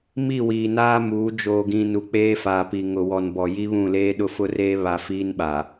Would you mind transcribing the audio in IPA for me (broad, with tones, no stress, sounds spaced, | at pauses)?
m i˦˨ w iː˨ n aː˦ m uː˨˦ d͡ʒ oː˨ ɡ ĩ˨ n u˨ k͡p eː˦ f aː˨ p i˨ ŋ ʊ˨ w ɔ˨ n b ɔ˨ j i˦ β ũ˦˨ l eː˦ ɗ ʊ˦ f ʊ˦ r eː˦ β a˨ f iː˦ n ɓ a˨